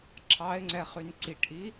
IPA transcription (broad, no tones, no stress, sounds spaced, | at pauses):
ǁʰ ɑ ɪ̯ ŋ͡ǀ ɛ χ y n ǀ i ʈ ʔ i